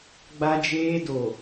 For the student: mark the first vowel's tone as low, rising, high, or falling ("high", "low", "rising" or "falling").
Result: high